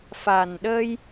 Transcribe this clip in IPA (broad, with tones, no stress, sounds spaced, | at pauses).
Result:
f a˨˩ n ɗ əː˧ j